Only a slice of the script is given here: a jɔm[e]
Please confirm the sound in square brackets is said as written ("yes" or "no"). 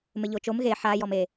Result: yes